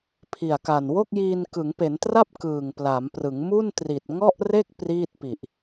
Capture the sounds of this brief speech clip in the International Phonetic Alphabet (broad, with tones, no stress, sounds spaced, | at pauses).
pʰ i˨˩ a̯ k a˨˩ n w o˥˩ k̚ j iː˧ n k ɯ˩˦ ŋ p e˩˦ n t r a˥˩ p̚ k ɯː˨˩ ŋ p l a˩˦ m p r ɯ˩˦ ŋ m u˥˩ n t r i˨˩ t̚ ŋ ɔ˥˩ ʔ r e˥˩ k̚ p r iː˥˩ t̚ p i˨˩ ʔ